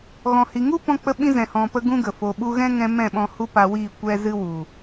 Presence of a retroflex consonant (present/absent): absent